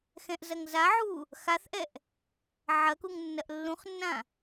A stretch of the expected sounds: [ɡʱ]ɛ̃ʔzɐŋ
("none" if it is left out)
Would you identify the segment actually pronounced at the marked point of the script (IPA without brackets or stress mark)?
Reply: x